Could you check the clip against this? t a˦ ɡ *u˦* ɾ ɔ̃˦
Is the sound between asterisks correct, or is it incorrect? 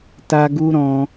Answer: correct